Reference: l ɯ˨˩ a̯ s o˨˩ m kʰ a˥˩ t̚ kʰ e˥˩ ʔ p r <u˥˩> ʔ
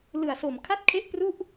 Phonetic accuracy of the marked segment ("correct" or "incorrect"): correct